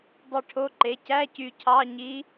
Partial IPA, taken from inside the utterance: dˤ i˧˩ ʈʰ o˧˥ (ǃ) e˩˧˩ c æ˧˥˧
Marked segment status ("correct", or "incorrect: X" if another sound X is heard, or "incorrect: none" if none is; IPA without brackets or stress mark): correct